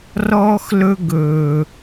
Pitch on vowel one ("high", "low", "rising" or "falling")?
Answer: high